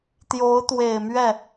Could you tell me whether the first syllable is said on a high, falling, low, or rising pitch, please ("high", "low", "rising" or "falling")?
rising